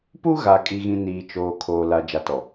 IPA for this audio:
p u˦ ɣ a˨ kʼ i˨ ɣ ĩ˨ n iː˨ t͡ʃ oː˨ kʰ oː˨ l a˨ d͡ʒ a˨ t ɔ˨

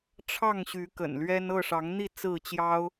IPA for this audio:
ʈ͡ʂʰ ɑ˥˨ ŋ ɕ y˨˦ k ə̰˨˩ n l ɥ ɛ˦ n ɤ˥˨ ʂ ɑ˨˦ ŋ n̪ i˥˨ t͡s ɹ̩˥˨ t͡ɕ j ɑ˦ ʊ̯

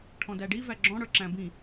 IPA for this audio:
ʈʰ ɔ̃ d æ ɖ i v æ ɡ͡ǁ ɔ̃ ɽ ə˞ ǁ æ̃ b ĩ

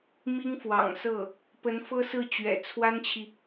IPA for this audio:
m i˥ ŋ f w ɑ̰˨˩ ŋ s ɤ˥˩ | p ə˧˥ n f ɤ˥ s ɹ̩˥˩ t͡ɕ ɥ ɛ̰˨˩ t͡sʰ w a˥ n t͡ɕʰ i˨

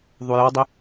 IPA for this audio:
ðˤ u j ɔ dˤ ə

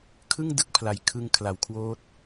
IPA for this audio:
kʰ ɯ˥˩ ŋ d ɯ˥˩ k̚ pʰ l a˧ j kʰ ɯ˦˥ ŋ kʰ l a˧ w kʰ w oː˦˥ t̚

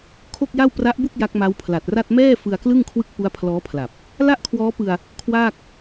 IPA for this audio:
kʰ o˥˩ k̚ j a˥˩ w p r a˦˥ ʔ b u˥˩ k̚ j a˦˥ k̚ m a˦˥ w pʰ l a˨˩ t̚ r a˥˩ t̚ m ɛː˥˩ f ɯ˧ a̯ k l ɯ˥˩ ŋ kʰ w ɯ˥˩ k̚ p u˦˥ a̯ pʰ l ɔː˦˥ pʰ l a˨˩ p̚ | l a˥˩ ʔ kʰ w ɔː˦˥ p ɯ˧ a̯ | kʰ w aː˥˩ k̚

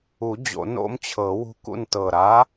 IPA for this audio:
u˨˩˦ d͡ʑ o̰˨˩˦ n o̰˦ m t͡ɕʰ ɤ˨˩˦ w ṳ˦ k ṵ˥˨ n t ɤ˨˩ ɾ a˨˥

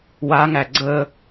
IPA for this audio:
w a ŋ æ ɡ͡ǀ ə

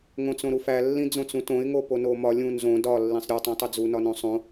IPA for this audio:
ŋ õ t͡s õ ɾ u f æ lː ĩ d͡z õ t͡s ũ t õ ɪ̯ ŋ o p o n o m ɒ lʲ ũ n z õ d ɒ lː ĩ sˤ ɾʲ o tˤ ĩ tˤ o d͡z u n ɒ n õ sˤ õ

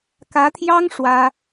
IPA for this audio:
k ä˧˥ t̪ʰ j ɑ˥ ŋ ʂ w ä˥

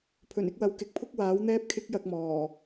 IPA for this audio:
pʰ ɵ˨˩ n ɪ˧ k̚ w ɐ˨ w k ɪ˨˥ k̚ pʰ ʊ˥ k̚ w aː˨˥ w n̪ ɛː˥ p̚ kʰ ɪ˥ k̚ j ɐ˧ k̚ m ɔː˨˩

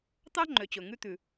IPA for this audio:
t̪ ɑ˥ ŋ͡ǃ ø˩ t͡ɕ ɵ˩ ŋ ʉ˧ t̪ ʉ˩

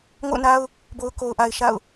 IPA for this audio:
ŋ o̰˦˨ ʊ̯ n a˦ ʊ̯ | b o˨ ʊ̯ k o˨ ʊ̯ ʔ a˨ ɪ̯ ʃ a̰˦˨ ʊ̯

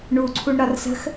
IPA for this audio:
ɳ u ǀʰ u ɳ ɾ ɒ r s ə̤ x

